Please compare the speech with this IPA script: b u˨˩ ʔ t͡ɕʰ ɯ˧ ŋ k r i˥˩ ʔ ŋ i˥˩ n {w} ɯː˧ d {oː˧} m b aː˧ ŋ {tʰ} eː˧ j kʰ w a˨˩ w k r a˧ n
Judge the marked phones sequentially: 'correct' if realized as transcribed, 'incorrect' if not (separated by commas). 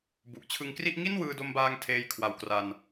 correct, incorrect, correct